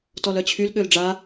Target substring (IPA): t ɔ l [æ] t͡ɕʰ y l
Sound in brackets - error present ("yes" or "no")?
yes